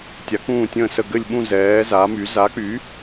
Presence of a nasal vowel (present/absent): present